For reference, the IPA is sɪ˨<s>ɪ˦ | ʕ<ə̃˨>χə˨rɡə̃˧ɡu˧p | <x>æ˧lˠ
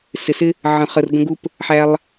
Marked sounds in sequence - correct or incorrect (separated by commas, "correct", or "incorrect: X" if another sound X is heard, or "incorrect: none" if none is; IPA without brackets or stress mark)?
correct, correct, incorrect: ħ